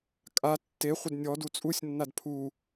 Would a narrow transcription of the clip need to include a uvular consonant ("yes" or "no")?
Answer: yes